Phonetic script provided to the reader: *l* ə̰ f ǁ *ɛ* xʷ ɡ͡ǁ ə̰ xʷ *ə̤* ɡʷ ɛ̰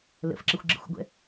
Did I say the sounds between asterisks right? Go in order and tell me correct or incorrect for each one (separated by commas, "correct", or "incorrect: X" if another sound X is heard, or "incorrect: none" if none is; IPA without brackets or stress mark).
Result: correct, incorrect: ə, incorrect: ə̰